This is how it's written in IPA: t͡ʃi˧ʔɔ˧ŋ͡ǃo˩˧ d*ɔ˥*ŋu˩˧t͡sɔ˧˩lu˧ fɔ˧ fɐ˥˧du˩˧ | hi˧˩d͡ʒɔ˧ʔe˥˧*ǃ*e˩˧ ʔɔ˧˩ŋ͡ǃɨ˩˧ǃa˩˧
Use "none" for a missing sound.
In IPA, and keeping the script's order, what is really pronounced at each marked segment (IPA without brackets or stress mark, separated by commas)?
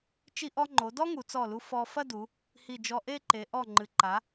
ɔ˥, ǃ